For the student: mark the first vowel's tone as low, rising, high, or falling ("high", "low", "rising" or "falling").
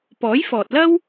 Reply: rising